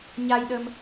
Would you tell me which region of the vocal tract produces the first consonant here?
palate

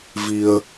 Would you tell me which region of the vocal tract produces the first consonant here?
lips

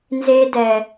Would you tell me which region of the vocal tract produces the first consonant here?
tongue tip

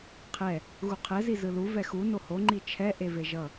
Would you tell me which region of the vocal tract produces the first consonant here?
uvula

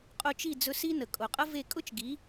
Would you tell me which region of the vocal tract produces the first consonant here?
uvula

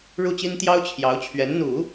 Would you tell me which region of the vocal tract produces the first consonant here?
retroflex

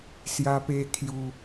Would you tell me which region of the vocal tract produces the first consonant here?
tongue tip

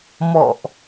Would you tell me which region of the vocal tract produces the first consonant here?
lips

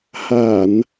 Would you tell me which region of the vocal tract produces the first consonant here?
throat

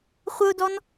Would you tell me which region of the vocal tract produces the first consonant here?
uvula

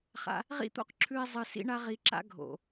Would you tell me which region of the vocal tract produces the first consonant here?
uvula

